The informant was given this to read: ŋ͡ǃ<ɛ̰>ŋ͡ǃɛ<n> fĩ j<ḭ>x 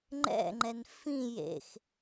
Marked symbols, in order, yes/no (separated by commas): yes, yes, no